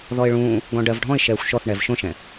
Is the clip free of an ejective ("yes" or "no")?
yes